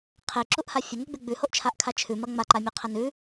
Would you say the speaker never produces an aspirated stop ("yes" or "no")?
no